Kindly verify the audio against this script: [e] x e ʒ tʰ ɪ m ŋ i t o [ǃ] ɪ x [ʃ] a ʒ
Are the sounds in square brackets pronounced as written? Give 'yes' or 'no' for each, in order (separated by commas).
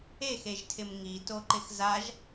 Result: yes, yes, no